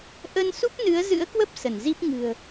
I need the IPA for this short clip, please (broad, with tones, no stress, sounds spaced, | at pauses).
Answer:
ʔ ə˧ n s u˦˥ p̚ n ɨ˨˦ ə̯ z ɨ̰˧˥ ə̯ k w ə˦˥ p̚ s ə˧˩ n z i˦˥ p̚ ŋ ɨ̤˨˩ ə̯